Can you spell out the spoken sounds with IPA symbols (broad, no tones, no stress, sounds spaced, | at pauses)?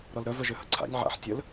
ɾ ɔ l ɾ œ v œ ʒ ø h ə̰ ǀʰ a̰ nʲ ʕ a̰ ħ tʲ ə l